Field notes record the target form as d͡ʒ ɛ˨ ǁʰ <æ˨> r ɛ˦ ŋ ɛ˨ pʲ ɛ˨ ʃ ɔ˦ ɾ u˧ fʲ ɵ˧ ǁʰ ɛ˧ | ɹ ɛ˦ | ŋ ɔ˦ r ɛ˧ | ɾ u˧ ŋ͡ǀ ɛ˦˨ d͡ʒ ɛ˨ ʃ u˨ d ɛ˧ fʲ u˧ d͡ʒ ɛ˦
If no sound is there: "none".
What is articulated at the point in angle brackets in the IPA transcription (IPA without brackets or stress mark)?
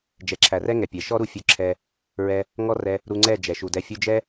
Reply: æ˨